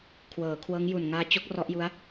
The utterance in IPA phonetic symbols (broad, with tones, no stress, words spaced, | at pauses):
kʰwɤː˩˦kʰwɤː˦˥ŋ ju˨˩nŋaː˦˥t͡ɕo˦˥k̚ rɔ˦˥ʔju˦˥a̯